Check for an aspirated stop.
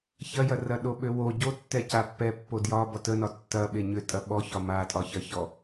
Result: absent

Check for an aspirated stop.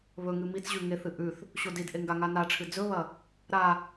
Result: present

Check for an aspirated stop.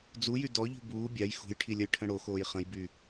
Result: present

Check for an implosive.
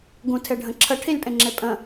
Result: absent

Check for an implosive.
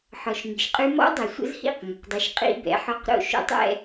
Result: absent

